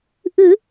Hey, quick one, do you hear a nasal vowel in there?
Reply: no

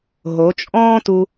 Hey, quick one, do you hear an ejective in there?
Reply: yes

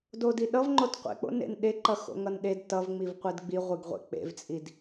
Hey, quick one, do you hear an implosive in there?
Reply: yes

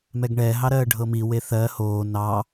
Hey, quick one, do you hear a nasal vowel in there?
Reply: no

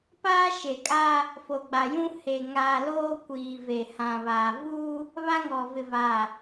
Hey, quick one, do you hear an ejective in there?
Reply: yes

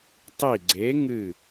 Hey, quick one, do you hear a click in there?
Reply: yes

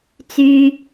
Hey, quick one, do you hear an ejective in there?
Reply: no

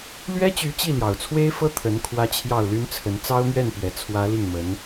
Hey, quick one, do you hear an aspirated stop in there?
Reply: yes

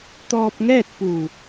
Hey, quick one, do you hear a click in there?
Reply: no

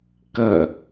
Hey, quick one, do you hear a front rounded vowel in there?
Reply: no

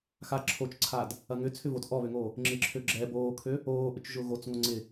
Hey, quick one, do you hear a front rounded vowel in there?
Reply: yes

